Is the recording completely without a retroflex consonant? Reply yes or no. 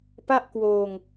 yes